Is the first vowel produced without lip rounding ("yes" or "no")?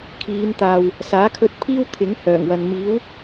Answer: yes